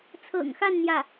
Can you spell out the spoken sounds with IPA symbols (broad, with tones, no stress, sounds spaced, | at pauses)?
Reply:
t͡sʰ ɤ̰˨˩ ŋ x a˥˧ n n̪ j ä˥˩